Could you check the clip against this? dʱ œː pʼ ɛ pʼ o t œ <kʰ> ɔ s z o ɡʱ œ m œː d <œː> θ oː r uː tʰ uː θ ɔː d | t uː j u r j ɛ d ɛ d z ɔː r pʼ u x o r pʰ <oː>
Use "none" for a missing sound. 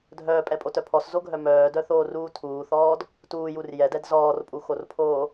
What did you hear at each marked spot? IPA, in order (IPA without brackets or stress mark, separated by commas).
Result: pʰ, œ, oː